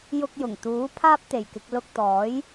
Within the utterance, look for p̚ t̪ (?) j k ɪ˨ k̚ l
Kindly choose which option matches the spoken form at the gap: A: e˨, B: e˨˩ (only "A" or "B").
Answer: B